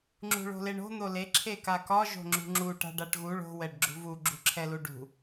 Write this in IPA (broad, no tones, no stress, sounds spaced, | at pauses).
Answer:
ŋ͡ǁ ṳ ɭ o̤ l e ɳ o̤ n̪ o l e ǁʰ e k a k ɒ ʒ o̤ ŋ͡ǁ ṳ ŋ͡ǁ u ʈ a̤ ɖ a ʈ ɣ u ɭ o̤ w ɛ ɖ ɡ͡ǁ ṳ v u ɡ͡ǁ ṳ ǁʰ ɛ l u ɖ ṳ